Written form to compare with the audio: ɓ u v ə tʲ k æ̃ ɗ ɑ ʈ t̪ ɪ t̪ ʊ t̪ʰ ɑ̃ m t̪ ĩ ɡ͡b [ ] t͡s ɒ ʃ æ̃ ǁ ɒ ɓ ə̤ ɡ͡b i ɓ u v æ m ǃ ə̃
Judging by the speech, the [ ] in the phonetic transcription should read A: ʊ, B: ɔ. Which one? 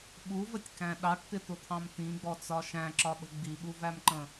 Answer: B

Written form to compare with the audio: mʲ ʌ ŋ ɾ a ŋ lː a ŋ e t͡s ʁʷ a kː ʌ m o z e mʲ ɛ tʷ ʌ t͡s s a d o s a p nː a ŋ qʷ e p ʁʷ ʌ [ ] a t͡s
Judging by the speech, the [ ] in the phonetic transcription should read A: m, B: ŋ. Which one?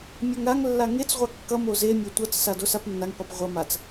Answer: A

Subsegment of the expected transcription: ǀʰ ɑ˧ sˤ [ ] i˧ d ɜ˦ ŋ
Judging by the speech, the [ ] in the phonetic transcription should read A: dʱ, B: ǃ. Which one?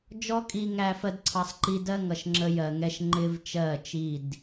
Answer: B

